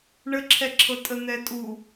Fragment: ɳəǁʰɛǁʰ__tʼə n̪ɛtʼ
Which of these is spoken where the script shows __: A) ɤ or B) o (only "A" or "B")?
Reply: A